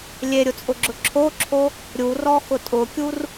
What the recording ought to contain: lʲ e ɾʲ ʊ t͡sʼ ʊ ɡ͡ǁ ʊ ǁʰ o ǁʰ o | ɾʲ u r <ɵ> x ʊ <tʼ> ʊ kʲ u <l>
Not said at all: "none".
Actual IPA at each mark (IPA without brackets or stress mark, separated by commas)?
ɔ, tʼ, r